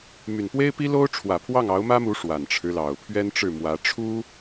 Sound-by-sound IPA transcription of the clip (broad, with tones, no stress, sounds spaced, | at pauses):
m y˨˩ n p w e˥ ɪ̯ p i˥ l o˥ ʊ̯ ʈ͡ʂʰ w ä˨˩ pʰ w ɑ˥˩ ŋ ɑ˧˥ ʊ̯ m ä˥ m u˧˥ ʂ w a˨˩ n ʈ͡ʂʰ ɻ̩˦ l ɑ˨˩ ʊ̯ pʰ ɥ ɛ˥ n ʈ͡ʂ ɻ̩˥˩ m w ä˧˥ ʈ͡ʂʰ u˥